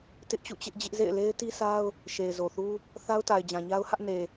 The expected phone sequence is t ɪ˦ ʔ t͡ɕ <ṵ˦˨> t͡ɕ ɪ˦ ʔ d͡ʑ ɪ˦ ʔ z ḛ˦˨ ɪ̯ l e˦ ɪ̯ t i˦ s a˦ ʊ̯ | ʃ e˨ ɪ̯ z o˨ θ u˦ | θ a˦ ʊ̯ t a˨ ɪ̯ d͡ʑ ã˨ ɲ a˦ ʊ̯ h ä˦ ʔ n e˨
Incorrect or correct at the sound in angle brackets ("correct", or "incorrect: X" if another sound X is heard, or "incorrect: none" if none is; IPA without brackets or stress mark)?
correct